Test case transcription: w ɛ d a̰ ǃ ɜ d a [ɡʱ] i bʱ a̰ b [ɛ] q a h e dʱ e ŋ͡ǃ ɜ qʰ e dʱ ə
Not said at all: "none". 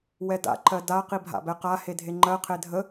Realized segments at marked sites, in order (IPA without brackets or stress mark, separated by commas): q, ɛ